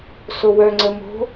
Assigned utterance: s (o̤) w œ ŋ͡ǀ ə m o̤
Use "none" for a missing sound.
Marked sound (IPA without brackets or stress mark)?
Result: o